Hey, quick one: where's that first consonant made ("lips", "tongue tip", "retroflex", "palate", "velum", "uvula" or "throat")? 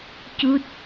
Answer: palate